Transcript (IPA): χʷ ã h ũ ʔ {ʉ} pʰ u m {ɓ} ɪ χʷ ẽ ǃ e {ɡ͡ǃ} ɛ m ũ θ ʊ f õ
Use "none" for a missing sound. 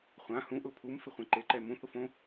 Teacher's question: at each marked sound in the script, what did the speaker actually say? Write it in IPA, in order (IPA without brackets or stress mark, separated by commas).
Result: ʊ, f, ǃ